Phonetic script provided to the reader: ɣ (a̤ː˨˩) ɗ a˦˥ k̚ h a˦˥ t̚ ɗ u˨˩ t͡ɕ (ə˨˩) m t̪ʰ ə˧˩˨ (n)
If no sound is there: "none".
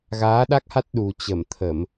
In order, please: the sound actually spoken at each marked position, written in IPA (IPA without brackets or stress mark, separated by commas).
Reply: aː˨˦, ə˧˩, m